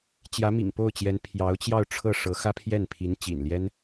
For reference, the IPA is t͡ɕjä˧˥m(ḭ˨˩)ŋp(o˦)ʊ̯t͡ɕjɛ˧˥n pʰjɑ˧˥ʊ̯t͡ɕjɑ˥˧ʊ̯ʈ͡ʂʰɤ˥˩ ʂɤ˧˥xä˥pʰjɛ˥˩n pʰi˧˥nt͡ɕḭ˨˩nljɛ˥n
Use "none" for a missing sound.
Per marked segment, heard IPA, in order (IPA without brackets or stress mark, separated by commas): ḭ˨˩, o˥˩